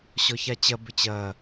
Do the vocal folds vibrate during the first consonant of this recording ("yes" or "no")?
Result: no